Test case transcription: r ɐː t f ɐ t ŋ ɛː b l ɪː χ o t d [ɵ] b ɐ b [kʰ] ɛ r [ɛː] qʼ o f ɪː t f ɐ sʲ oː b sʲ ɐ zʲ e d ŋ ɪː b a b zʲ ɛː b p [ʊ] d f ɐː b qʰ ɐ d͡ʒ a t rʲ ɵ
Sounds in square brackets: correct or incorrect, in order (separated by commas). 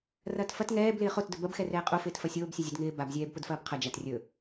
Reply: correct, incorrect, correct, correct